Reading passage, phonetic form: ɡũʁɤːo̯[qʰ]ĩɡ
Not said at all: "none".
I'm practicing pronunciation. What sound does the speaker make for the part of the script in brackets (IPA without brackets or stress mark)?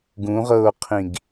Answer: qʰ